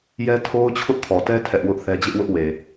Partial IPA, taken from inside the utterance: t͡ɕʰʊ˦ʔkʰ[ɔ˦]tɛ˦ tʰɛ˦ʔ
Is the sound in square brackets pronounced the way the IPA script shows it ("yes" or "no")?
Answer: no